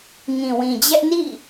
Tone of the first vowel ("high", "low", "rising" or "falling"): low